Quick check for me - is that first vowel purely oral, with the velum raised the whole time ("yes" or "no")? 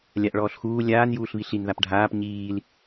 yes